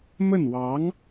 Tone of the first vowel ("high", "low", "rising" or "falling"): falling